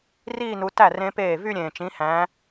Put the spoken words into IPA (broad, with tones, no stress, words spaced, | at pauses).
riː˥˧nu˨˦tæ˥˩ rẽ˦˥peː˥˩ vy˥˧ɾʲẽː˨˩t͡ʃĩ˨˦hæ̃˨˦